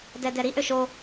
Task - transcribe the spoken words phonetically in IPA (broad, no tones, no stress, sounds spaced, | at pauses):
d ɛ d ɛ ɾ i ʔ ø ʃ o